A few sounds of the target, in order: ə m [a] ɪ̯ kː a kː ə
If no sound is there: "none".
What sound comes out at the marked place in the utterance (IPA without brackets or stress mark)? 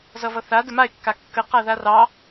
a